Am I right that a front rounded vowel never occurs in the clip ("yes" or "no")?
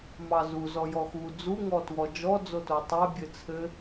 yes